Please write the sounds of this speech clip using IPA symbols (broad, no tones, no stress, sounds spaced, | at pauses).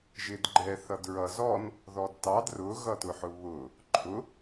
ʒ ɪ d ɡ͡ǃ ɛ θ ʌ d ɹ ʌ z ɔ n | ð ɔ d t ɑ d r ʊ ɣ ʌ t ʊ ħ ʊ β ʊ | ǃʰ ʊ